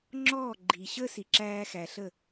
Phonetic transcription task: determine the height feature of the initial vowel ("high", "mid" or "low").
mid